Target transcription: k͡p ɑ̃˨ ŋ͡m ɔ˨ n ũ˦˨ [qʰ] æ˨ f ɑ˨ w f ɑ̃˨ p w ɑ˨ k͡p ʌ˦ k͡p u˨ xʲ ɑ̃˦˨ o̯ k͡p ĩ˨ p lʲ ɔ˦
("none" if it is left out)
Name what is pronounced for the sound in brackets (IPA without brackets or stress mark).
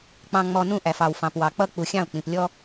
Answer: ʔ